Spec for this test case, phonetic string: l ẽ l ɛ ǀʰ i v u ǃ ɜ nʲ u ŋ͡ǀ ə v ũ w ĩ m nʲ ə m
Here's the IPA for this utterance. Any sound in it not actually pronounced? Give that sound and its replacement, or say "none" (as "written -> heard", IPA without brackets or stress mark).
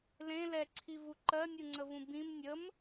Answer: w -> b